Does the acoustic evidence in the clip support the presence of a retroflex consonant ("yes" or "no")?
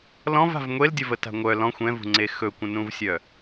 no